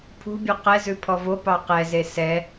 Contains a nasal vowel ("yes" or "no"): no